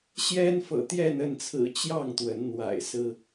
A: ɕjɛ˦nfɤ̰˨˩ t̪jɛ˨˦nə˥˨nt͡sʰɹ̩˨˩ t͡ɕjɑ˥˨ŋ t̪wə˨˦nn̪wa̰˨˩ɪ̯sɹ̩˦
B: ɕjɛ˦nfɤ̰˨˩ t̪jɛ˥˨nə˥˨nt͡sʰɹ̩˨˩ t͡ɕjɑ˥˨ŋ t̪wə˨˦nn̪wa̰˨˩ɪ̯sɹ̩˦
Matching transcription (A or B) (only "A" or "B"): B